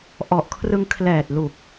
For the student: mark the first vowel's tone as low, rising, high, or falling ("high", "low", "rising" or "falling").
low